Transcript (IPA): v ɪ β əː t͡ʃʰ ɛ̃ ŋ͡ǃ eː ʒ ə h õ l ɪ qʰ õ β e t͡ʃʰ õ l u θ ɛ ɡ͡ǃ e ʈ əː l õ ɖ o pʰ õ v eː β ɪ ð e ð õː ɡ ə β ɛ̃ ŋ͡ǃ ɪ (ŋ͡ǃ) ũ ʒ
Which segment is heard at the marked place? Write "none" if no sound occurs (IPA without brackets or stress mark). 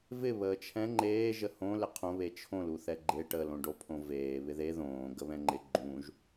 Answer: ɡ͡ǃ